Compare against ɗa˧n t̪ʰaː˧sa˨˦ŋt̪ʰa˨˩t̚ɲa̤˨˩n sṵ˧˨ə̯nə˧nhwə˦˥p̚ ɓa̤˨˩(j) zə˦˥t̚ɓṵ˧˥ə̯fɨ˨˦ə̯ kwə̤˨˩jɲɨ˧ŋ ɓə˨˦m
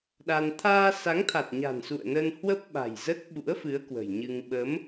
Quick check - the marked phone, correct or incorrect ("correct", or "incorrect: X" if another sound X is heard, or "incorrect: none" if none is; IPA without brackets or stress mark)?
correct